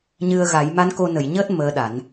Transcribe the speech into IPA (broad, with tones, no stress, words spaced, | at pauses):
ɲɨ˧ə̯ɣa˨˩˦j ma˧˥nko˧nə˨˩˨j ɲəː˦˥t̚ məː˧˥ɗa˨˩˦n